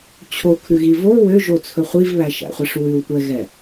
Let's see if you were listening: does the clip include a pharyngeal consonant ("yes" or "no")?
no